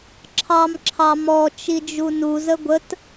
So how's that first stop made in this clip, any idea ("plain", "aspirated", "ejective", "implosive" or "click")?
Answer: click